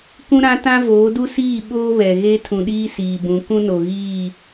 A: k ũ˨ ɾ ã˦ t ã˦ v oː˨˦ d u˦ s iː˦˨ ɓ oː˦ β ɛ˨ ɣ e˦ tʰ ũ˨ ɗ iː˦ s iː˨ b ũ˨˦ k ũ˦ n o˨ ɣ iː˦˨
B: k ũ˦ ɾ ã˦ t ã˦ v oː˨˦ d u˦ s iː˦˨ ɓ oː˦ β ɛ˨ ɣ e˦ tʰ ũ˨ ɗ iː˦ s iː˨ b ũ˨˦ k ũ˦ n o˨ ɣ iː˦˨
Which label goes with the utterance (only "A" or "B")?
B